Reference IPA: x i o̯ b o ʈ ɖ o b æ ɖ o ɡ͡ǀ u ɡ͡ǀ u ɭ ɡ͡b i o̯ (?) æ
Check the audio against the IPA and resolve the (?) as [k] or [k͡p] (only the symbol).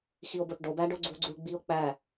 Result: k͡p